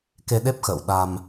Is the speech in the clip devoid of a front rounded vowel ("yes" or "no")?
yes